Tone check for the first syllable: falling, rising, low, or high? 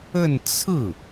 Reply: falling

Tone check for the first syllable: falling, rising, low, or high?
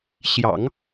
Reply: low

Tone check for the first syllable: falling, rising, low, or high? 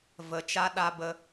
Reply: low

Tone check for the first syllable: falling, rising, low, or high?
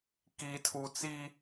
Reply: low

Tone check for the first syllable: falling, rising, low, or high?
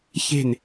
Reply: falling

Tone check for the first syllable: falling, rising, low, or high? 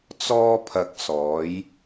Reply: high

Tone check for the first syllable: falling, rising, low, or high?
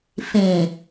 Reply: low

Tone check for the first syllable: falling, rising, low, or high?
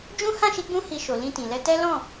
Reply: high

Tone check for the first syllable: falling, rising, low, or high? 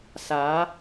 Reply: rising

